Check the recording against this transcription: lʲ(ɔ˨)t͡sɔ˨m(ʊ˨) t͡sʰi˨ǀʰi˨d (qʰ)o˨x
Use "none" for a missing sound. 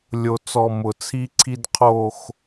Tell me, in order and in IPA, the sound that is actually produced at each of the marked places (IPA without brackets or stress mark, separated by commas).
o˨, ʊ˨, qʰ